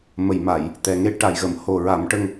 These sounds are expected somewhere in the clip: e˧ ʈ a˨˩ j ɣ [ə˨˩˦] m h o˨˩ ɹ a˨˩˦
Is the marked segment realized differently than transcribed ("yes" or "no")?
yes